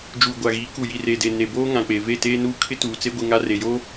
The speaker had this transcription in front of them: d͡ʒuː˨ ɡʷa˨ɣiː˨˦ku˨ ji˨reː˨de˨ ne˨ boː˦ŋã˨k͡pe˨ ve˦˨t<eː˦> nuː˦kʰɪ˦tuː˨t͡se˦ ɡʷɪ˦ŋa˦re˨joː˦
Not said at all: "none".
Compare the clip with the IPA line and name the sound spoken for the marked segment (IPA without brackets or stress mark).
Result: eː˦